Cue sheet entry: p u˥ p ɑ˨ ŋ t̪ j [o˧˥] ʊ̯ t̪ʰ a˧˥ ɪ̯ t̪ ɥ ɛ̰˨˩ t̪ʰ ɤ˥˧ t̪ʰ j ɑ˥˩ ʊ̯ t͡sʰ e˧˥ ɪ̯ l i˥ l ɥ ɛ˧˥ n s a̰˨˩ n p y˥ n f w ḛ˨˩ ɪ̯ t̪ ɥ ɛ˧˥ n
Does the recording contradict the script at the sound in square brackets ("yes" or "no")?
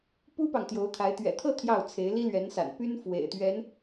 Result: no